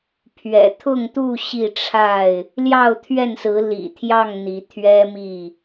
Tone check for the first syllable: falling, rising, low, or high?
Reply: low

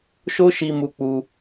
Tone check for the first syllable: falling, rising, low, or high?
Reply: high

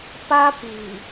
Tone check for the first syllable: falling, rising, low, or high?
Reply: high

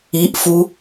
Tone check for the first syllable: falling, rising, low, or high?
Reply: rising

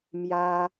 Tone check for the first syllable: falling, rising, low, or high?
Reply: high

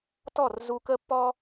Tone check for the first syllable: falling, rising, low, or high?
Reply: falling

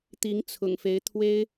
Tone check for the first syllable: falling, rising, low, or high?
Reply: rising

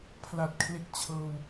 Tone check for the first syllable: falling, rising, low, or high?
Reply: low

